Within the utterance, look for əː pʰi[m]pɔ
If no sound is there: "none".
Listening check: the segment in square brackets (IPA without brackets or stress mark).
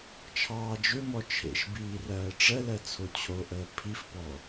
f